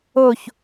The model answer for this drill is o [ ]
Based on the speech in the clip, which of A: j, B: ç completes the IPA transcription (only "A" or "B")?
B